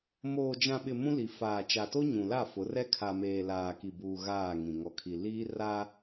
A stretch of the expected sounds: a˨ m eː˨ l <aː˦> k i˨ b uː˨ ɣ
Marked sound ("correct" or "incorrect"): incorrect